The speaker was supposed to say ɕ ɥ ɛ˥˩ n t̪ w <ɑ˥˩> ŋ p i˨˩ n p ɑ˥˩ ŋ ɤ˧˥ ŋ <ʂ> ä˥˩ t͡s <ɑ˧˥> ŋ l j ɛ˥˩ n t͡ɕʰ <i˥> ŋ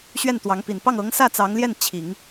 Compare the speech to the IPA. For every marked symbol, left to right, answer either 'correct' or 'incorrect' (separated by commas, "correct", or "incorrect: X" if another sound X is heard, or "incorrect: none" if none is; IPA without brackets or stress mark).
incorrect: ɑ˧˥, incorrect: s, correct, incorrect: i˨˩˦